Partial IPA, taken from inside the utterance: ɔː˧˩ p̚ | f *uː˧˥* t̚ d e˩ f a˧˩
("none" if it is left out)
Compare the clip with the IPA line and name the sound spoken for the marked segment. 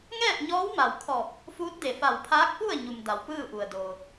uː˧˥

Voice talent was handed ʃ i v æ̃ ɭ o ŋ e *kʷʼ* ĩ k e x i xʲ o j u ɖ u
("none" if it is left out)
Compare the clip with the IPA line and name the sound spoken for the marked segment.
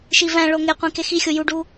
qʷ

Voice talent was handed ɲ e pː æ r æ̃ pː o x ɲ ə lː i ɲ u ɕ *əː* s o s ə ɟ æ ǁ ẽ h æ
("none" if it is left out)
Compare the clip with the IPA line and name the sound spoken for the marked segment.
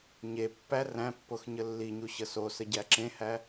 ə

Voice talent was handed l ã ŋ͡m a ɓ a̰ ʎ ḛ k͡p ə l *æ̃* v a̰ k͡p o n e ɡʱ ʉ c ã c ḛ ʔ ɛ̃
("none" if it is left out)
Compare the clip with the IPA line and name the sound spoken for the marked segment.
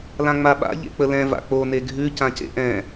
ɛ̃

